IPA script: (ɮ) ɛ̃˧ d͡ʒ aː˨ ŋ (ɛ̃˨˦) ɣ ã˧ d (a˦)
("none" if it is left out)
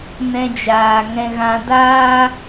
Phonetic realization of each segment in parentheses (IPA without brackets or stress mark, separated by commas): n, ɛ̃˧, aː˦